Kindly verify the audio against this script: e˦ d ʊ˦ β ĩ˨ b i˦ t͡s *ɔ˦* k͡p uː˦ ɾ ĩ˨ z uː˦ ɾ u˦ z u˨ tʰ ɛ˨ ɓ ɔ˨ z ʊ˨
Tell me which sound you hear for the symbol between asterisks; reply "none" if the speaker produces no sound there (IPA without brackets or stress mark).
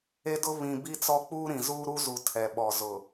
ɔ˦